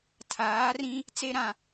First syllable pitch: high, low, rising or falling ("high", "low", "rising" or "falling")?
rising